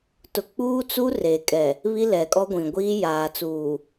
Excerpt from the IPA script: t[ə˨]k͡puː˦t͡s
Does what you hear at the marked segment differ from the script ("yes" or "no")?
yes